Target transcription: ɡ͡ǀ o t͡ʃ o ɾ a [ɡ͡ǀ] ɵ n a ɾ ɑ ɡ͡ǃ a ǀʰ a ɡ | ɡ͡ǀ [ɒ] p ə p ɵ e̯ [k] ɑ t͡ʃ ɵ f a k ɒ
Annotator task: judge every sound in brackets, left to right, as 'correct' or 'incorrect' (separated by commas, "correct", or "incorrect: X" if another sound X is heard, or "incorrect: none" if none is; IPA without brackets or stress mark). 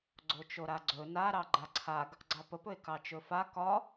correct, incorrect: ɑ, correct